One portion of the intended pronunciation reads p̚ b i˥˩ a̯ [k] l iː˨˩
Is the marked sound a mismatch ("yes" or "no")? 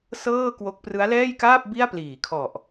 yes